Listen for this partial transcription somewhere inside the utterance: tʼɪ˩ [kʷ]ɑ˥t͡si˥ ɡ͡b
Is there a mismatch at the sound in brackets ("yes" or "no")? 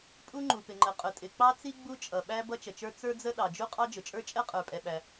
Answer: yes